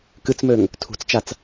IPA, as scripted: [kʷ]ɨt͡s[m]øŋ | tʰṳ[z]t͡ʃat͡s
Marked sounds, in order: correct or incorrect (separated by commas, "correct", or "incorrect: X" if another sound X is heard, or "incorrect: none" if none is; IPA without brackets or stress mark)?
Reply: incorrect: k, correct, incorrect: t͡s